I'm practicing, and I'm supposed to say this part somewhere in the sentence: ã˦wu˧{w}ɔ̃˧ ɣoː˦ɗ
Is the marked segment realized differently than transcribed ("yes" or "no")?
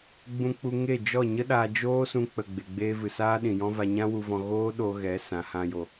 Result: yes